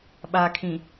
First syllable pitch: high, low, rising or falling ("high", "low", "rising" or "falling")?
low